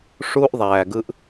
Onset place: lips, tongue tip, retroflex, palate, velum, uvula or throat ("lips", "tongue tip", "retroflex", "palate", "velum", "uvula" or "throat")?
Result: retroflex